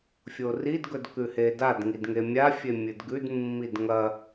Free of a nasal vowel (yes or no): yes